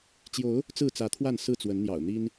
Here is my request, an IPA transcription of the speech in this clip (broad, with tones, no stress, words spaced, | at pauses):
t͡ɕjo˨˦ʊ̯ | t͡sɹ̩˥˨t͡sä˨˦t̪ʰwa˥˨n sɹ̩˥˨t͡swə˨˦nn̪jɑ̰˨˩ʊ̯ n̪i˦n